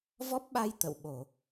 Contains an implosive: yes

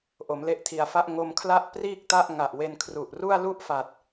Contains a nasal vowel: no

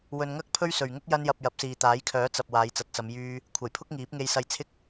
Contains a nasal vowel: no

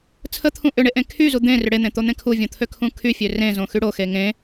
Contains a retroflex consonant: yes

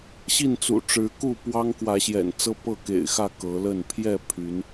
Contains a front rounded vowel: yes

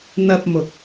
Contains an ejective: no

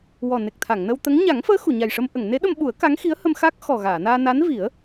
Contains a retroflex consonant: yes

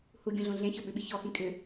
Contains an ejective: yes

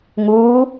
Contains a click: no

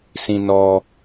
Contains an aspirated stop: no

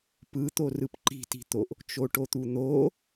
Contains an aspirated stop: no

